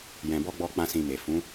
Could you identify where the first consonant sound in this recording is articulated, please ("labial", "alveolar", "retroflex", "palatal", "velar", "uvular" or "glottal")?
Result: palatal